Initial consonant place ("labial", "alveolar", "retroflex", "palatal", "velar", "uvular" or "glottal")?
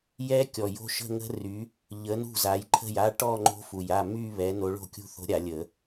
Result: palatal